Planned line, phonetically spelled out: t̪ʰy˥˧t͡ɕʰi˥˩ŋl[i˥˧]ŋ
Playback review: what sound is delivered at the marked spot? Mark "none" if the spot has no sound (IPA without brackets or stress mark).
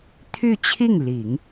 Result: i˨˩˦